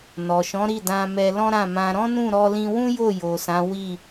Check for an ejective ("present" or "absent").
absent